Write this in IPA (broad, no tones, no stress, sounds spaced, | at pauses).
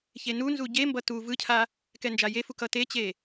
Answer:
ç e n u n z u ɟ e m b ʌ t u v ɯ cʰ a | k ɛ n d͡ʒ a j e f u k ʌ t e t͡ɕ e